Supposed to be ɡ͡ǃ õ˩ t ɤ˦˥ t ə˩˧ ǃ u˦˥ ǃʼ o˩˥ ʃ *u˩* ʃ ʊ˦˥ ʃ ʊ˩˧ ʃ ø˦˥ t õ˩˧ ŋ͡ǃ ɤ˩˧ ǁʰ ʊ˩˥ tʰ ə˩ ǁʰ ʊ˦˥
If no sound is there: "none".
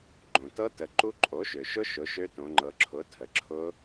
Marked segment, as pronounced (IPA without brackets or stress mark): ø˩